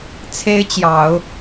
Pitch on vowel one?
high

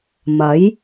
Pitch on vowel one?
rising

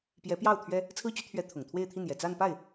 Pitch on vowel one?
rising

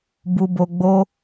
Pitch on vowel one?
low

